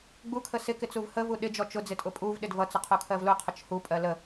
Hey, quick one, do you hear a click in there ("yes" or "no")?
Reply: no